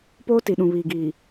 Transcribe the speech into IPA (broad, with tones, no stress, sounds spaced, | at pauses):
p oː˦ t i˨ ɗ ũ˨ β iː˨ ɡ iː˨